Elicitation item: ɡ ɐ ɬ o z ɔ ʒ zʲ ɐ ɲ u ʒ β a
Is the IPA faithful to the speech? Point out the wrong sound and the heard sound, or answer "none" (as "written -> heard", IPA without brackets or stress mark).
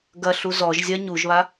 o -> u